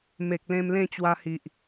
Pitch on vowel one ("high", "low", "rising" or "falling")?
low